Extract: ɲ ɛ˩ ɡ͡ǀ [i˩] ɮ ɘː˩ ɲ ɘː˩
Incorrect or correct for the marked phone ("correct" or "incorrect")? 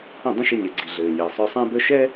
correct